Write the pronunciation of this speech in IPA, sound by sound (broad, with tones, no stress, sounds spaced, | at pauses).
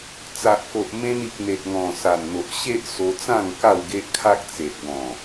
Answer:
t͡s a˨ ʔ k o˨ ʔ m ẽ˧ n i˨ k̚ n̪ e˨ t̚ ŋ ɔ̃˨˩ s a˨˩ n n̪ o˨ ʔ ɕ e˦ ʔ s o˧ t͡s ã˥˧ ŋ k a˥˧ w ɡ e˦ ʔ kʰ a˦ k̚ t͡s e˨ ʔ ɡ ɔ̃˨˩